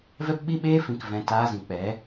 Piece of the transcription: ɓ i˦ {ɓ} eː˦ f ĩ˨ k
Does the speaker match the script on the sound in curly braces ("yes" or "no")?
yes